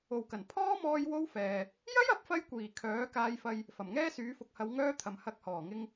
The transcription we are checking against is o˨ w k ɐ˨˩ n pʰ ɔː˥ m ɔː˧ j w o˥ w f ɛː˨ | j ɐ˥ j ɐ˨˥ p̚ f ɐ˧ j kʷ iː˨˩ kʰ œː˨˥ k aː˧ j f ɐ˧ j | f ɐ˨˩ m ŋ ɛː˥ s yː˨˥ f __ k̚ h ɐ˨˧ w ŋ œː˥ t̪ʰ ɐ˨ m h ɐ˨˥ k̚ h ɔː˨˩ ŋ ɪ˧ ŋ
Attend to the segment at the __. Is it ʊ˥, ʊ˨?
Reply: ʊ˨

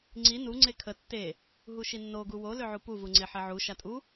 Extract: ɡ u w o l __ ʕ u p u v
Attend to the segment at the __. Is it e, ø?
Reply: ø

